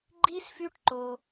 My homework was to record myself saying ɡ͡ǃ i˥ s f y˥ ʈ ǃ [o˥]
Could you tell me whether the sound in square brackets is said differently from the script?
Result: no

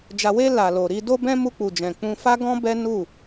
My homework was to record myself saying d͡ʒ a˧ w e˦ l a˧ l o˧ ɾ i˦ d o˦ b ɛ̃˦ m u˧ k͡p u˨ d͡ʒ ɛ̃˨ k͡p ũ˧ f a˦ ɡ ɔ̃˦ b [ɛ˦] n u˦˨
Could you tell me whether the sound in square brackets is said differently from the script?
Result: no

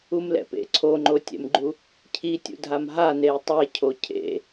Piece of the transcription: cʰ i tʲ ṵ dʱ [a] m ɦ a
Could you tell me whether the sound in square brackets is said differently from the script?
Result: no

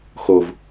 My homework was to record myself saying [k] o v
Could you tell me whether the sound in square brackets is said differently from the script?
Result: yes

